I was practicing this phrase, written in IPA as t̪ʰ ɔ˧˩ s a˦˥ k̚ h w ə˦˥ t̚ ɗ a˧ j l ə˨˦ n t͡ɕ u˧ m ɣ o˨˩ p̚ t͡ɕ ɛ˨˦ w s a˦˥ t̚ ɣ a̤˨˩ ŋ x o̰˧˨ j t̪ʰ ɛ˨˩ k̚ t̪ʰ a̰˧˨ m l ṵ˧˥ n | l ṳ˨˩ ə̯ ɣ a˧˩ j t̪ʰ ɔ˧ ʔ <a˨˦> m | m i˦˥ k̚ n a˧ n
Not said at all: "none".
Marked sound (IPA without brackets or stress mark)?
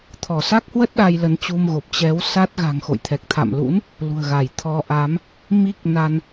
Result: a˨˦